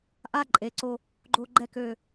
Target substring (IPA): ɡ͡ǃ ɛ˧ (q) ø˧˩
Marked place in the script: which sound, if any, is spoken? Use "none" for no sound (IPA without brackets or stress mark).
k